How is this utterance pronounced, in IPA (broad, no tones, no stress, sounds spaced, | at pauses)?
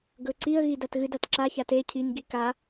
ɡ ɵ ǀ i ə̯ ɣ i d a t ɣ ɨ d a t ǁ a ç a t e cʰ i ɲ ɡ i k a